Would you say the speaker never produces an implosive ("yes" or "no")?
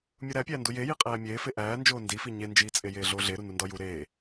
yes